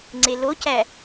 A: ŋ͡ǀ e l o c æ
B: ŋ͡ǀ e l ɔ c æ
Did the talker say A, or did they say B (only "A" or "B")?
A